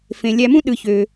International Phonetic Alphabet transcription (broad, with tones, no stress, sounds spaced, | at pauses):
f ẽ˩ lʲ æ˨ m ũ˦ ɗ ɯ˩ ç ø˩